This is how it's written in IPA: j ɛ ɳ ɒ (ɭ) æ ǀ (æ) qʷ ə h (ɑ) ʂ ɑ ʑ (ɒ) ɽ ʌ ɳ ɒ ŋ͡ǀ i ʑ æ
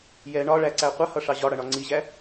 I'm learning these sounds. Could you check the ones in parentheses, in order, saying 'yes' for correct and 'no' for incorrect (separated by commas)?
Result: yes, yes, no, yes